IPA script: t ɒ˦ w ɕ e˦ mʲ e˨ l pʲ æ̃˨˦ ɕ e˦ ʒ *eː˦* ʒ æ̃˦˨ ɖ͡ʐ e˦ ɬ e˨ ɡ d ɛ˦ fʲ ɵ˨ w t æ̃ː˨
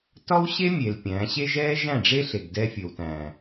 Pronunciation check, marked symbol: incorrect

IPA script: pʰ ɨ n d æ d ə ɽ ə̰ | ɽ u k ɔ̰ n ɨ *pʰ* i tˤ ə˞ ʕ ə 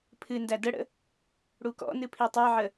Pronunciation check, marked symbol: correct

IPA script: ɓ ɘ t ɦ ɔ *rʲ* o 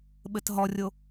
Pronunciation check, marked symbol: correct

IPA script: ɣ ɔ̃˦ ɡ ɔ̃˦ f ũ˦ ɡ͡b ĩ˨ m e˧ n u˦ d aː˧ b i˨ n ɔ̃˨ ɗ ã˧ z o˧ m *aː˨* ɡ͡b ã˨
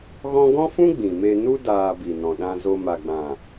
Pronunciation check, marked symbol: incorrect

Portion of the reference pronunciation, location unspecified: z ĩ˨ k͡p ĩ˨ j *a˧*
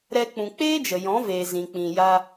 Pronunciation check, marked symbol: correct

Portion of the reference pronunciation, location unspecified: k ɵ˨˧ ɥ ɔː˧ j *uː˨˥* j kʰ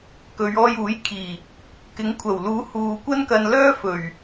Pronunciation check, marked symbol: correct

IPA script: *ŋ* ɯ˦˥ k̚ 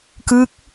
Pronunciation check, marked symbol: incorrect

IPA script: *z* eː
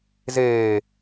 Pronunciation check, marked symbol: correct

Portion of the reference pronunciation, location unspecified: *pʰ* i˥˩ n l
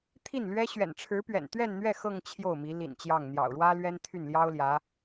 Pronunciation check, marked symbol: incorrect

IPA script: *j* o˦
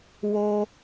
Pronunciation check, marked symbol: incorrect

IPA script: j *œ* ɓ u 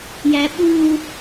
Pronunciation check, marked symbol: incorrect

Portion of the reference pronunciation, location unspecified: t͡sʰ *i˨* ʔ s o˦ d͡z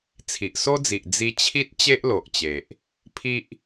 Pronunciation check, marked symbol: correct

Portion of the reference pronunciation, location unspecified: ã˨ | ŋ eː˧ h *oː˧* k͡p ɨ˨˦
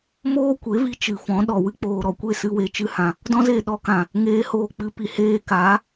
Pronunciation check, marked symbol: correct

